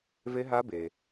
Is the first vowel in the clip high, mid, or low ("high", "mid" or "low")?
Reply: mid